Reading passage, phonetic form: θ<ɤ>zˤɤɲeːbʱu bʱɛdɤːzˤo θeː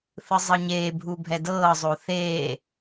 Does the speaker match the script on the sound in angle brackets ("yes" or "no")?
no